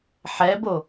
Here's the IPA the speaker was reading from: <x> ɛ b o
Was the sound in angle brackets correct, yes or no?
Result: no